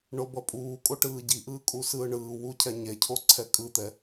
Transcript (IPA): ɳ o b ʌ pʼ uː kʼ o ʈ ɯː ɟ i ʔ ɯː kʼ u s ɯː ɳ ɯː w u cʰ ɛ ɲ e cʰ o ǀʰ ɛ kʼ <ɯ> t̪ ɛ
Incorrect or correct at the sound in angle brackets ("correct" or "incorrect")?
correct